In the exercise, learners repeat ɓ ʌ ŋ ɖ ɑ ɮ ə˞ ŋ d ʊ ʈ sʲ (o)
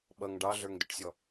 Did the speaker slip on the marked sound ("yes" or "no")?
yes